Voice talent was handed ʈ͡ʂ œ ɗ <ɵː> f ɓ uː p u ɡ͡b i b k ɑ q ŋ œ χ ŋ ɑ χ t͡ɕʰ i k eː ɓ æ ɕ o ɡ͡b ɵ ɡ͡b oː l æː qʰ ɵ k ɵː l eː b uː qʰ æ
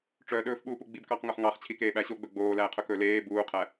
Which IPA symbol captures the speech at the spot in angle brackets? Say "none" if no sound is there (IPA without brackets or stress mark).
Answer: ɵː